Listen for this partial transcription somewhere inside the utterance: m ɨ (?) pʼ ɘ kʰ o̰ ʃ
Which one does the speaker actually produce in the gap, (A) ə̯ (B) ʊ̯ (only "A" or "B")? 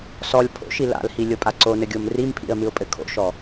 B